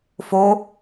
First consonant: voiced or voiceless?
voiceless